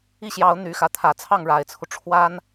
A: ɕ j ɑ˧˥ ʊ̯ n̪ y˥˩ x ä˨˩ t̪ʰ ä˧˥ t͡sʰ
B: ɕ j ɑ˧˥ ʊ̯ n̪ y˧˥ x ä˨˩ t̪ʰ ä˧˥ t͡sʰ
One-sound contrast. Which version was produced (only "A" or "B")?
B